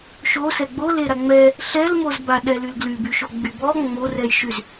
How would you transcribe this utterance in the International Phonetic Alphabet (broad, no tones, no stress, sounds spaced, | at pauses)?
ʃ o s ɛ ɡ͡b o l e ɾ a ŋ͡m ɛ | ɬ ɛ l m o z b a ɗ ɛ l y l ɡ l y b y ʃ o ɡ͡b y b ɔ ŋ͡m o r ɛ j ʃ y z